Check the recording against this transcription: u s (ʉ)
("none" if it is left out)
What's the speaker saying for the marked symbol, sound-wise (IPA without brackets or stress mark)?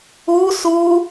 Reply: u